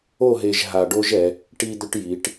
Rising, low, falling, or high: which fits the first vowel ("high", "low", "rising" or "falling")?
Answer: falling